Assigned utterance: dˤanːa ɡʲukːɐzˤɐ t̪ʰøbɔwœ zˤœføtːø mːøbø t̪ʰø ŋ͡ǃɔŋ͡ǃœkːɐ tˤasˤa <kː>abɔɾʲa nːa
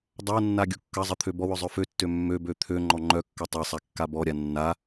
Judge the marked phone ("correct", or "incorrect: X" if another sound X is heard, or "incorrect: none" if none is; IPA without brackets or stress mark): correct